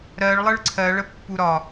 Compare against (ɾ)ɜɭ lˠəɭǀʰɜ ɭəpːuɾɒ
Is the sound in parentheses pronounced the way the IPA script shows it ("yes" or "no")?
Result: yes